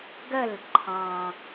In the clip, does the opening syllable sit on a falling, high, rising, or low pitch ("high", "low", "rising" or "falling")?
falling